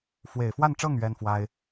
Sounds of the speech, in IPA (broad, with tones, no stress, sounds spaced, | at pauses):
f w e˨˩ ɪ̯ f w a˥˧ n ʈ͡ʂ ɤ˥˩ ŋ ɥ ɛ˥ n f w a˥ ɪ̯